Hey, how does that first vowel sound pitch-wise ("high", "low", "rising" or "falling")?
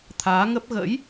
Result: rising